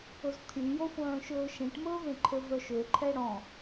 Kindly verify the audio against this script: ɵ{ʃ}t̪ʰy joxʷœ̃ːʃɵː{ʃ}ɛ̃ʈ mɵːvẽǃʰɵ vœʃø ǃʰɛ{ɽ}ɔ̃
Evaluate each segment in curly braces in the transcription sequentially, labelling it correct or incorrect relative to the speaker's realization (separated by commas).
incorrect, correct, correct